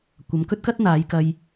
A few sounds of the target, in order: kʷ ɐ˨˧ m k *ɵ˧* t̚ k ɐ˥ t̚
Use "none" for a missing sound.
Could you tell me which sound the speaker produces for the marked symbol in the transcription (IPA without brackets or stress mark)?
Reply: ɵ˥